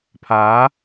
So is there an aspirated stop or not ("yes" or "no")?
yes